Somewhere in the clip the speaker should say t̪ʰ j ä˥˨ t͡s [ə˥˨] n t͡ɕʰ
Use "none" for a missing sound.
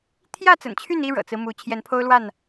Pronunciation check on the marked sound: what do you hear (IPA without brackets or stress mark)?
ə̰˨˩